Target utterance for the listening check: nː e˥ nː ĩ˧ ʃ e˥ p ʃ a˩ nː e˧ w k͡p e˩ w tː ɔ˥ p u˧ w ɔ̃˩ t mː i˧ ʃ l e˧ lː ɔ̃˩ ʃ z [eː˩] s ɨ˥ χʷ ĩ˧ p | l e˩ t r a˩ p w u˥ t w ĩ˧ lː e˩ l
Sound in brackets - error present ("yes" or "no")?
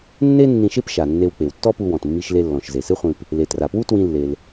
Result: yes